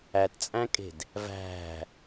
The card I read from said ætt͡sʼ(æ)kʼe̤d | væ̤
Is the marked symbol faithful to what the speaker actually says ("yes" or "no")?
no